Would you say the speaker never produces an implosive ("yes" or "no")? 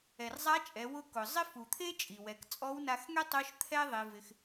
yes